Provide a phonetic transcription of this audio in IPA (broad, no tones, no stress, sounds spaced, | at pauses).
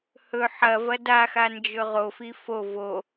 h ɵ ħ ɐ v ɐ d a x a n d͡ʒ ɵ ʁ o f i f o v o